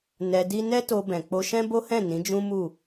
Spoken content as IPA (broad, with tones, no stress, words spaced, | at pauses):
nɛ˧di˦ nɛ˦to˧bɛ̃˨ k͡po˧ʃɛ̃˦bo˦hɛ̃˦˨ nĩ˨˦d͡ʒũ˦mu˦˨